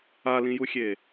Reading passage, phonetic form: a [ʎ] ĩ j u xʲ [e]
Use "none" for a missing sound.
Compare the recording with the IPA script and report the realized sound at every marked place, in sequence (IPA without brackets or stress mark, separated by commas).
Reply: l, e